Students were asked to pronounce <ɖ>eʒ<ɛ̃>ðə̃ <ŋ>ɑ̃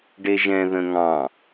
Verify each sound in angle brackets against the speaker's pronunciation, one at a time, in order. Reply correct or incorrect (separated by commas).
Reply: correct, correct, correct